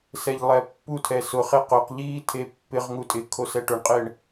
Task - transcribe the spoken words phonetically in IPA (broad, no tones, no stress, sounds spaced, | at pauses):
s ɛ ʎ lˠ ɛ pː u tʰ ɛ s ʊ χ e q ʊ q ʎ iː tʰ e pː ɪ ʁ ŋ u tʼ ɪ kʰ o s ɛ ʈ ʊ ɳ qʼ ɪː ɳ